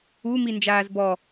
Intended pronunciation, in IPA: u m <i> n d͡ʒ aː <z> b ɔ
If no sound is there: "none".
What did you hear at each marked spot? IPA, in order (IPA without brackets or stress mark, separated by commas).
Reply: i, z